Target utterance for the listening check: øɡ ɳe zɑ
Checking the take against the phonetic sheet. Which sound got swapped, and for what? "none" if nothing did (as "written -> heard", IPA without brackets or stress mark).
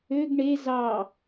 none